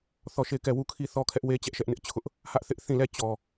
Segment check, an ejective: absent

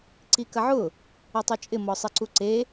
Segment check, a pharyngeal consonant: present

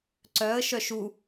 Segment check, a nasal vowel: absent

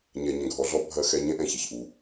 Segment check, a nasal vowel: present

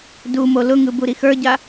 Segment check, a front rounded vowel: absent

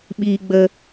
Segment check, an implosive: present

